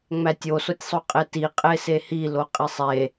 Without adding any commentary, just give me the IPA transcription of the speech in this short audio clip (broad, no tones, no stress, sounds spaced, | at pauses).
ŋ͡m æ tʲ o s o tʲ sˤ o qʼ e t i qʼ e s e h i l o qʼ i sˤ e